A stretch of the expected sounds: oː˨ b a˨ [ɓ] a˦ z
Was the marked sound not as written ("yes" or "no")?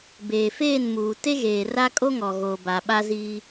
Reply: no